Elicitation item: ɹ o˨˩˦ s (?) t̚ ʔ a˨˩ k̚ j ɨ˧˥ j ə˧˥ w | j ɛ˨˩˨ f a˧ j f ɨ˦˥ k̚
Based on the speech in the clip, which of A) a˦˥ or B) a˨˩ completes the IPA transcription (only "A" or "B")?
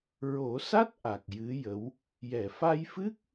A